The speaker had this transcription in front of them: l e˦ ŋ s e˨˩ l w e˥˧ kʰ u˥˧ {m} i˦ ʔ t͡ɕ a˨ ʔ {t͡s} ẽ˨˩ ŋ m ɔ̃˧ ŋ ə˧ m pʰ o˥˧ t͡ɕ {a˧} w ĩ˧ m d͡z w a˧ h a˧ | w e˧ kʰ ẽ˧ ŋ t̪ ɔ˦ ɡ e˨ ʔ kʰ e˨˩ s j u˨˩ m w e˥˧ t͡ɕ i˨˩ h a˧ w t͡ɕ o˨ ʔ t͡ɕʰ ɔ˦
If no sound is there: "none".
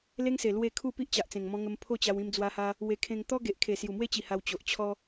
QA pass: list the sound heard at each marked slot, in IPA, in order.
p, t͡s, a˧

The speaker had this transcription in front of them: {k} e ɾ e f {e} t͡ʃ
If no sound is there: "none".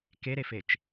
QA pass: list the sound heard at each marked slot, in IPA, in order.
k, e

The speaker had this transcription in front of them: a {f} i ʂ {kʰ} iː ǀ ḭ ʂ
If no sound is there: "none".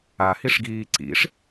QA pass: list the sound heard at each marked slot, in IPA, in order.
h, ɡ

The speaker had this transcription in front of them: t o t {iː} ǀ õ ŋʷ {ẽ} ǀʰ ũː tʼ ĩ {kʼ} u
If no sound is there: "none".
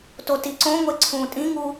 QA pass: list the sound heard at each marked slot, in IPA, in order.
i, e, ŋ

